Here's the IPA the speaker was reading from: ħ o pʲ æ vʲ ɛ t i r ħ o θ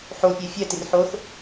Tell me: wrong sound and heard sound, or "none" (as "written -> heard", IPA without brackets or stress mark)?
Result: vʲ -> fʲ